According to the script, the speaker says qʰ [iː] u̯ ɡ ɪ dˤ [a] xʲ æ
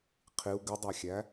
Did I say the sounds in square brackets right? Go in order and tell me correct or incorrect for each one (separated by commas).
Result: incorrect, incorrect